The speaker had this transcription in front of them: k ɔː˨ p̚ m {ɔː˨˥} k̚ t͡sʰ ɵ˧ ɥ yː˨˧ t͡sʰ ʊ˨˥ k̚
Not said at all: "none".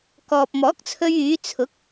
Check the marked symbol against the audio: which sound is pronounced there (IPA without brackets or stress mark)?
ɔː˨˥